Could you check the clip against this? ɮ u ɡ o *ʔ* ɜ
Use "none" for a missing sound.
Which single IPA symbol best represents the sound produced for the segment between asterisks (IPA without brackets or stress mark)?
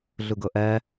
ʔ